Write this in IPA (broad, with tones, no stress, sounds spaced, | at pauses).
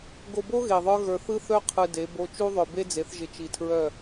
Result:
ɡ o˨ b o˦ ɣ e˨ ðˤ ə˞˦ ɣ ə˞˨ θ ɯ˦ θ œ˦ qʰ ɯ˨ d e˨˦ b o˦ t͡ʃ u˦ ðˤ œ˨ b e˦ d͡z e˨˦ θ ʒ ɪ˨ t͡ʃ i˨ tʰ ɹ œ˦˨